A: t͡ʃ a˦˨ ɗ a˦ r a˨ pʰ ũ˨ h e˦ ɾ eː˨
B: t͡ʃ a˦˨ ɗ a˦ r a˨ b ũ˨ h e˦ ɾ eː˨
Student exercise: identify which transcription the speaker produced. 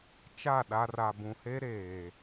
B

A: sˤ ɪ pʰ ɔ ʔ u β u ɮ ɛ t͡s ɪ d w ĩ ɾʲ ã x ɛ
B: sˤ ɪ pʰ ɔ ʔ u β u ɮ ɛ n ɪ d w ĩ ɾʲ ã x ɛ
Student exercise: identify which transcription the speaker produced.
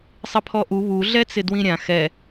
A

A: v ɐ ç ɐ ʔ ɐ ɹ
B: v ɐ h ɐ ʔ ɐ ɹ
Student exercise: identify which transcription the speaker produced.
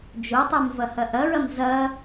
B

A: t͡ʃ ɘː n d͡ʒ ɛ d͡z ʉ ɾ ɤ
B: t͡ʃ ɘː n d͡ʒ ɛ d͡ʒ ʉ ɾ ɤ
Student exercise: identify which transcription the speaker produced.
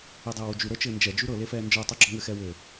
B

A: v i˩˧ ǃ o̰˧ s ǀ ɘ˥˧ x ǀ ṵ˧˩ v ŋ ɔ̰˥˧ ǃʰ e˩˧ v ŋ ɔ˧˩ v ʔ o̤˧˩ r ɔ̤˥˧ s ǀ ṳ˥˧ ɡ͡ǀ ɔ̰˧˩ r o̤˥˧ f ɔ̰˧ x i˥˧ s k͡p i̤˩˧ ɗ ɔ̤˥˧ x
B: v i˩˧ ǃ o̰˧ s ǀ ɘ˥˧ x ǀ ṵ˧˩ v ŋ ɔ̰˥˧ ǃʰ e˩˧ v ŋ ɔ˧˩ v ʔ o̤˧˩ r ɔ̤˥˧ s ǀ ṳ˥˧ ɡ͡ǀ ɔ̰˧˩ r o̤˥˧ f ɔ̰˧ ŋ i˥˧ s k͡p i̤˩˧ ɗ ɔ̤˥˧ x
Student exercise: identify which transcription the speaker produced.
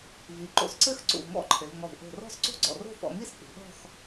B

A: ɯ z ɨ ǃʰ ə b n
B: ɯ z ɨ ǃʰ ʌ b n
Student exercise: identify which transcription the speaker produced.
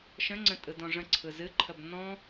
A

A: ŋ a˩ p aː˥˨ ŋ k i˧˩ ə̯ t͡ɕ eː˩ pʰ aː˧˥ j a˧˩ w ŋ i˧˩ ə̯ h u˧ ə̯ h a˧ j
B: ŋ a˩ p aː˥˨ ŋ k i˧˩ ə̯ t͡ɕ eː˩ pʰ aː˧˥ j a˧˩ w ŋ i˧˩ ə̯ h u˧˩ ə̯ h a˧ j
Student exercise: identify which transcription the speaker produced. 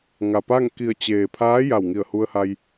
A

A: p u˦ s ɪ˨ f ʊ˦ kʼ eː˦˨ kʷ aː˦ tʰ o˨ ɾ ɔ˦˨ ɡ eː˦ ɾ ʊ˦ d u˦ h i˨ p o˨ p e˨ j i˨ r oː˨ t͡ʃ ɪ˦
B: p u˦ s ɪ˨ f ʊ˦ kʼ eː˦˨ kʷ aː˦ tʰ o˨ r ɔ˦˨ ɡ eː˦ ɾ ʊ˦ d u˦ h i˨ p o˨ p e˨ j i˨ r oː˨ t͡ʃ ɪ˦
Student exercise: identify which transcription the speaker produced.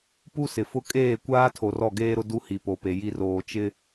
B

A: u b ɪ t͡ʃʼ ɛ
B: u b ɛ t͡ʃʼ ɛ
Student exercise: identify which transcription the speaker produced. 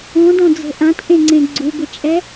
A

